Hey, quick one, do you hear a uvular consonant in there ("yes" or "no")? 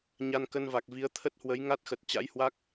no